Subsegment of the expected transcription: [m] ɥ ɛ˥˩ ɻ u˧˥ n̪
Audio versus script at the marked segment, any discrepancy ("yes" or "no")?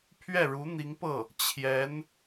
yes